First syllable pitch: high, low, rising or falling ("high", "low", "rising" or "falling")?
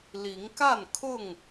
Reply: rising